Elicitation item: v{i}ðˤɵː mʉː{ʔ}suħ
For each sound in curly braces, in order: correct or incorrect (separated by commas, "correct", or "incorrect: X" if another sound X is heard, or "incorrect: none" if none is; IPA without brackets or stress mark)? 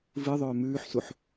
incorrect: ɨ, incorrect: ħ